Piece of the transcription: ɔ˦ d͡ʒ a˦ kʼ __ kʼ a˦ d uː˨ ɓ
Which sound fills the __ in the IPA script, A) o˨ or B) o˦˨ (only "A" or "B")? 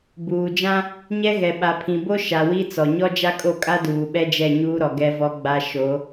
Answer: B